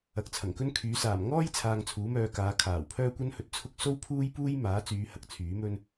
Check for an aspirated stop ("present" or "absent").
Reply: present